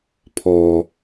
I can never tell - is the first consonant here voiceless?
yes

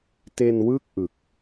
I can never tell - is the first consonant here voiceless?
yes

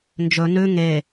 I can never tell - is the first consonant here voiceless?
no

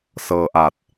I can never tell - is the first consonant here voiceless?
yes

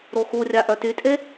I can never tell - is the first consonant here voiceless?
no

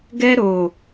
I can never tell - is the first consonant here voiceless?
no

